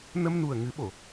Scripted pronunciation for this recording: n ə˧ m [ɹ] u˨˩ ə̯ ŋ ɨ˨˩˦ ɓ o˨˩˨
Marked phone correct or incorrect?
incorrect